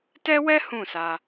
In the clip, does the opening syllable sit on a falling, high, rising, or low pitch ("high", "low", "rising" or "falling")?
high